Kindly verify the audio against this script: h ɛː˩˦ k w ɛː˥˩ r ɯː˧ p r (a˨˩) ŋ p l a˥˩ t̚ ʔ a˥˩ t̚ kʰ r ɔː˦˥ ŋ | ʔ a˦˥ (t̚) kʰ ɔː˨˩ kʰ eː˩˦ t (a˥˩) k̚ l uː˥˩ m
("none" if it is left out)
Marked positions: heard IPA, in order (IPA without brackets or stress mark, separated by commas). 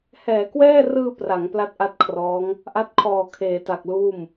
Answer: a˩˦, t̚, a˨˩